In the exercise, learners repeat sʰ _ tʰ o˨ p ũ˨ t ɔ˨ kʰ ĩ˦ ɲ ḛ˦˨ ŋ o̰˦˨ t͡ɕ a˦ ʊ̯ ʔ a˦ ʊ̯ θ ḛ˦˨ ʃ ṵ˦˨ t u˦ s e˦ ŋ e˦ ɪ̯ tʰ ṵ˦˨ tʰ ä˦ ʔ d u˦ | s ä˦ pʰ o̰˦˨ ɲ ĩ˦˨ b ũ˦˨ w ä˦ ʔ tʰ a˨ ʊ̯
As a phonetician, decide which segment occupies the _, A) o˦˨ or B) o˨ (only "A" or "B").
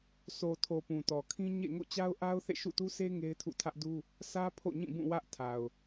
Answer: B